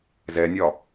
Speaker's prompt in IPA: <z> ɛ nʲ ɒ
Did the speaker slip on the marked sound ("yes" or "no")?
no